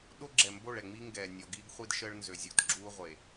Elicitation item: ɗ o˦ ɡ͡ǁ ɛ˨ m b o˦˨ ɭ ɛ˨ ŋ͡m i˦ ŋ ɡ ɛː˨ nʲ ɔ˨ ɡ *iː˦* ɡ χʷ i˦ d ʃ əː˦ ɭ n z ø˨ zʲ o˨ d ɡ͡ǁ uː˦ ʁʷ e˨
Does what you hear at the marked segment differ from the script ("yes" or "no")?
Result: no